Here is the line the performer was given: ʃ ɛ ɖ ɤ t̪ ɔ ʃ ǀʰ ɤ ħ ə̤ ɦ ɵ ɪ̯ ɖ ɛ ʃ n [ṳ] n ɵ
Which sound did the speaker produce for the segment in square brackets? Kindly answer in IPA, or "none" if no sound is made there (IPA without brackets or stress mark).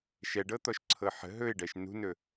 ṳ